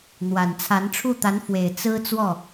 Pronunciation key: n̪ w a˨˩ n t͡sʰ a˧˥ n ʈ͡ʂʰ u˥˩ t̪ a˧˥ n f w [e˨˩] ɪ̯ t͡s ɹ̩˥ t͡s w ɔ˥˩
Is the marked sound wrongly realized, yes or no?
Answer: no